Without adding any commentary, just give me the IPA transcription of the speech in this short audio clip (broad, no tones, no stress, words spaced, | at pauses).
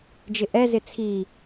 d͡ʒɪʔɛzɪ t͡sʰi